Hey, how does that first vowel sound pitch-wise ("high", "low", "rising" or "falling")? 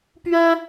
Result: high